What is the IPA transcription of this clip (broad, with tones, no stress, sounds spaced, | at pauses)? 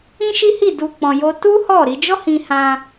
ĩ˦ ʃ i˦ h i˦˨ d u˧ k͡p ɔ̃˧ j o˦ t u˦ h ɔ˦˨ ɾ i˧ d͡ʒ ɔ˦ h ĩ˧ h ã˧